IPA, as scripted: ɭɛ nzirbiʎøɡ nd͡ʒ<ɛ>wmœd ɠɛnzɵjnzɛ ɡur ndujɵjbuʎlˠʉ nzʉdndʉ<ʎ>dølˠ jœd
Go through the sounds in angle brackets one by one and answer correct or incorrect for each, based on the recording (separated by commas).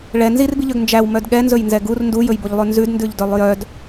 incorrect, correct